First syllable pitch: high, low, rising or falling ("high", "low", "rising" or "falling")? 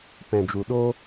low